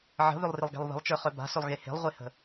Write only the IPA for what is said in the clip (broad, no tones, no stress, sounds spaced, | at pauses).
ʕ ə̤ β ʏ lˠ r ɪ lˠ ɡ e̤ lˠ β ə̤ lˠ t͡ʃ ə˞ χ œ b a̤ s ʏ lˠ ɣ e h e̤ lˠ ʁʷ e h ə̤